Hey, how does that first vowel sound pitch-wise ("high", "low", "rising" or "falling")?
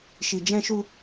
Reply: low